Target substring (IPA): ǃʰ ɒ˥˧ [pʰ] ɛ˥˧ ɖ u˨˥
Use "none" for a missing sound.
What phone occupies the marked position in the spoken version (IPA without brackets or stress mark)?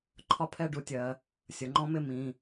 pʰ